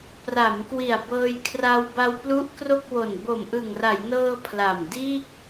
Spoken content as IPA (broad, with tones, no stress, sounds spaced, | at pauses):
p r a˩˦ m k w i˨˩ a̯ b ɤː˧ j kʰ r a˧ w b a˧ w p l u˦˥ ʔ k r o˥˩ k̚ w o˨˩ n b o˨˩ m ʔ ɯ˨˩ ŋ r a˩˦ j n ɤː˧ pʰ l a˨˩ m d iː˥˩ k̚